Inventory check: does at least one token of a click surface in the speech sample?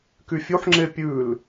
yes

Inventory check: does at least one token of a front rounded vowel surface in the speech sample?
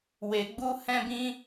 no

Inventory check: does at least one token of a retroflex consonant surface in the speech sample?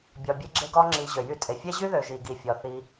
no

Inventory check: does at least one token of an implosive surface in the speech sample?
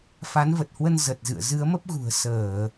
no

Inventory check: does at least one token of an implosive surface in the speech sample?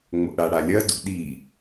yes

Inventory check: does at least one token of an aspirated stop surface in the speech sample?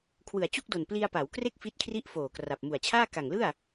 yes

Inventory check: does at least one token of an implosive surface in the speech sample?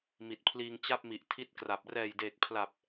no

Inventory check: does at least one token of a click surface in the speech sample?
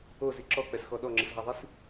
yes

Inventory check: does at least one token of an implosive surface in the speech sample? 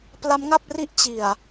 no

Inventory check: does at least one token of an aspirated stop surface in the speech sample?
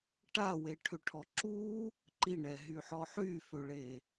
yes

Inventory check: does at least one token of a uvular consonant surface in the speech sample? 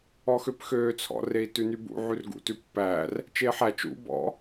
no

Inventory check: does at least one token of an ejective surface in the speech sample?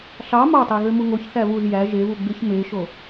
no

